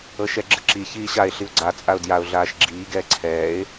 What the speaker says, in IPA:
ɤ ʃ ɛ ɡ͡ǁ ɯ ǁ i ç iː ɕ a ɪ̯ ɬ i ʊ̯ ɡ͡ǀ a t͡sʼ a ʊ̯ d j a ʊ̯ ɮ aː ʃ ɡ͡ǁ iː ɡ ɛː ǀʰ ɛː ɪ̯

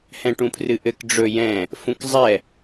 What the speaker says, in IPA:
h ɛ̃ ʈ ũ pʰ r ɨ ʔ ɘ k ɖ͡ʐ ɵ j ɛ̃ | f ũ k zˤ ɛ

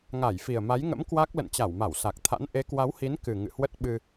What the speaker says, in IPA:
ŋ a˧˩ j f i˨˩ ə̯ m a˨˦ j ŋ ə̰˧˥ m k w a˦˥ k̚ l ə̰˧˨ n t͡ɕ a˧˩ w m a˧˩ w s a˨˩ k̚ t̪ʰ a̰˧˥ n ʔ e˨˦ k w a˨˦ w h i˨˦ n k ɨ˨˩ ŋ ɨ̰˧˨ h w ə˦˥ t̚ ɓ ɨ˧

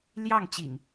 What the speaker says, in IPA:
l j ɑ˥˨ ŋ t͡ɕ ḭ˨˩ ŋ

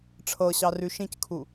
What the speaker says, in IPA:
ʈ͡ʂʰ ɤ ɕ ɑ r ʉ ʃ ĩ c kʰ u

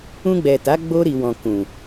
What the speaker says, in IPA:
ũ˧ ɡ͡b ɛ˨ t a˨˦ ɡ͡b o˧ ɾ i˨ w ɔ̃˨ k ũ˨

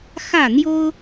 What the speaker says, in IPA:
x ä˥˨ n̪ j o˦ ʊ̯

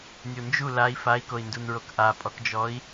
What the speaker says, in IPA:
nʲ o n d͡ʒ u l a i̯ f a i̯ k o i̯ n d u n ɹ o k ʔ a pʼ ɔ k d͡ʒ ɔ i̯

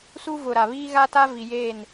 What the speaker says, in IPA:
s u˦ v ʊ˨ ɾ a˨ β iː˦ ɣ a˦ t a˦ v i˨ j eː˦˨ n

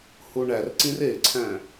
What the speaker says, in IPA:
h u ɳ æ r ǀ ĩ r e ǀʰ æ̃

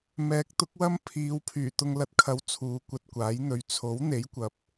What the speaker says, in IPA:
m ɛː˨˥ k̚ t̪ ʊ˨˥ k̚ w ɐ˥ m pʰ iː˨˧ w pʰ yː˨˩ t̪ ʊ˨ ŋ l ɐ˨˥ t̚ kʰ ɐ˨˥ w t͡sʰ uː˨˧ kʷ ɐ˧ t̚ kʷ aː˨˥ j n̪ ɵ˨˧ ɥ t͡sʰ o˨˥ w n̪ e˨˥ j kʷ ɐ˨˥ p̚

